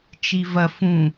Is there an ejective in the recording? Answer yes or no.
no